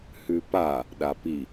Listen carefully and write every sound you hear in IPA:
h ʉ p a | ɗ a p i

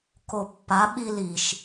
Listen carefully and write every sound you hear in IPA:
k o pː a ɓ i l i ʃ

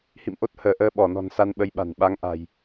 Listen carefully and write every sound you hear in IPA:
h ḭ˧˨ m ʔ o˦˥ t̚ h əː˧˩ ʔ əː˧ ɓ ɔ˧˩ n ɔ̤˨˩ n s a˧ n ɓ ə˨˦ j ɓ a̤˨˩ n ɓ a˨˦ ŋ ʔ a̤˨˩ j

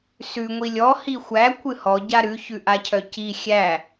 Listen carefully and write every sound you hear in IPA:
s ʉ ŋʷ i lʲ ɔ h i xʷ æ kʷ ɨ h ɔ ɟ a ɾ ʉ ç ʉ ʔ a cʰ œ c i xʲ æ

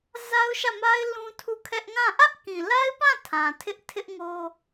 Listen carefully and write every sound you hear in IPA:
z a˦ ʊ̯ ʃ ä˦˨ m a˦ ɪ̯ l ũ˦ tʰ u˦˨ kʰ ɛ˦ ʔ ŋ ã˦˨ ʔ ä˦ ʔ k ĩ˨ l a˦ ɪ̯ p ã˦˨ tʰ ã˨ tʰ ɪ˦ ʔ tʰ ɪ˦ ʔ ŋ o˦

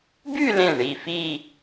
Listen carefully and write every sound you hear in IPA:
b y˥˧ l ẽ˧˩ ɳ i˧˩ f i˥˧

